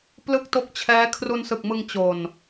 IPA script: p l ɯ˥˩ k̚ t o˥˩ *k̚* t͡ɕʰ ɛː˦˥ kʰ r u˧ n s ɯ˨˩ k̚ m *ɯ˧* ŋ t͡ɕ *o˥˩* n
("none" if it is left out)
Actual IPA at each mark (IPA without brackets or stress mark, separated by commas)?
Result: k̚, ɯ˧, o˨˩